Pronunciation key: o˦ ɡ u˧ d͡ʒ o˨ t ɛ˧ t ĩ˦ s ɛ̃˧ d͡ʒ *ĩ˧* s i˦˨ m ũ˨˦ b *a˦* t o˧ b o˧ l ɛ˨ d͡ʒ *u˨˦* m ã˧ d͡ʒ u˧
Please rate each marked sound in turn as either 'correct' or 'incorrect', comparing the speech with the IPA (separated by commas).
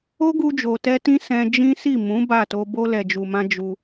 incorrect, incorrect, incorrect